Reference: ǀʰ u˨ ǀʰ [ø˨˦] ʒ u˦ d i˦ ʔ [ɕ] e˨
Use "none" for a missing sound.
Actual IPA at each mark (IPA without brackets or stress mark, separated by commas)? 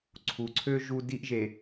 ø˦, ʒ